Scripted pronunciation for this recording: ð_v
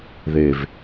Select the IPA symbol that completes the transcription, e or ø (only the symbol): e